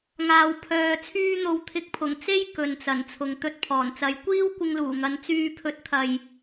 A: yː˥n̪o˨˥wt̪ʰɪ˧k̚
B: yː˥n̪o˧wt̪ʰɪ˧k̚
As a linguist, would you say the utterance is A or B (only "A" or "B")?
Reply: B